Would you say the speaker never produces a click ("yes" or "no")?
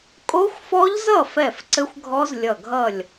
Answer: no